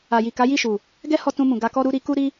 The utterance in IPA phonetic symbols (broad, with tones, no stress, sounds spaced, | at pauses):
a˨ j i˨ k a˨˦ j i˦˨ ʃ u˨ | ɡ ɛ˦ h ɔ˧ t ũ˧ m ũ˨ ɡ a˧ k ɔ˦ ɾ u˧ ɾ i˧ k u˦ ɾ i˦